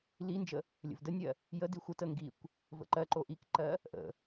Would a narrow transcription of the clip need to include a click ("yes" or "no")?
yes